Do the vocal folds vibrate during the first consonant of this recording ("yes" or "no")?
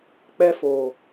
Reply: no